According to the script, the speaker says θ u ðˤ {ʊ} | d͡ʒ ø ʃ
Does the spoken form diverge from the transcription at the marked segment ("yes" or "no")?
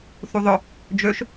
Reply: no